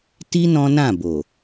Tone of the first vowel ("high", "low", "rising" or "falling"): high